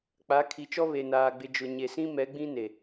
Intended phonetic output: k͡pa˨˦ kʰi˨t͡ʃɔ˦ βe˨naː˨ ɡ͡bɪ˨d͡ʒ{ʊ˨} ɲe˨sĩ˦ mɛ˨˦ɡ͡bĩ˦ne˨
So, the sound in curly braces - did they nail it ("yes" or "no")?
yes